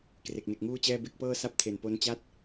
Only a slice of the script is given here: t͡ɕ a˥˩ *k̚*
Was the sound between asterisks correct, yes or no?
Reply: no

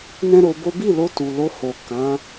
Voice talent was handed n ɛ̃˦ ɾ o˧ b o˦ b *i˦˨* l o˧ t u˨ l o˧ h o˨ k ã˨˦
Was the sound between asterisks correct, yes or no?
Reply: yes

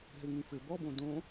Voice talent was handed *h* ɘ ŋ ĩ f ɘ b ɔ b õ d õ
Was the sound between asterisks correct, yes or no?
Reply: no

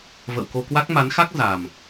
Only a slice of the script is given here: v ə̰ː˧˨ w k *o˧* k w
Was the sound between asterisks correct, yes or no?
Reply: yes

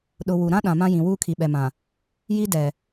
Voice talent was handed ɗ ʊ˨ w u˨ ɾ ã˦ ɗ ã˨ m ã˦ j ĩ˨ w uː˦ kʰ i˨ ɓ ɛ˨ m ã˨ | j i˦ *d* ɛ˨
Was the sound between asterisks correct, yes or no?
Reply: yes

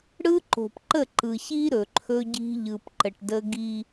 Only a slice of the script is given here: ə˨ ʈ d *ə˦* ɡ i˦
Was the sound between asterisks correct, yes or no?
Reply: yes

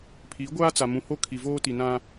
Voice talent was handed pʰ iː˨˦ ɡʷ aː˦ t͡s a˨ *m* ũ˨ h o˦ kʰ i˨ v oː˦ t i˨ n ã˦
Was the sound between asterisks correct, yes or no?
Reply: yes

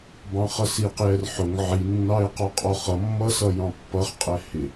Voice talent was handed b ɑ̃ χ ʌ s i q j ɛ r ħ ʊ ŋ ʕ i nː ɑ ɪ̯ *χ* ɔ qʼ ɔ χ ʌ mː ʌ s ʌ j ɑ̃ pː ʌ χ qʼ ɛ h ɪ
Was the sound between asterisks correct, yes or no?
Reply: no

